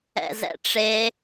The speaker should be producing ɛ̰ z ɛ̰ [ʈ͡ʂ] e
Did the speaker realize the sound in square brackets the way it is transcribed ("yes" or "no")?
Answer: yes